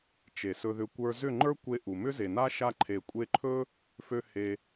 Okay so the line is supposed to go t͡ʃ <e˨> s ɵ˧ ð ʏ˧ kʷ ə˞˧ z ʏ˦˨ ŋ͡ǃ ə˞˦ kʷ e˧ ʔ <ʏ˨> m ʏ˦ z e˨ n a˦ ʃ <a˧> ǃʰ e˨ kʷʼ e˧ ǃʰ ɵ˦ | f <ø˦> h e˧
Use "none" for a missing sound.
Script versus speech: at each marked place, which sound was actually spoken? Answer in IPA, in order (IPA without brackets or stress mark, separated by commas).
e˨, u˨, a˧, ø˦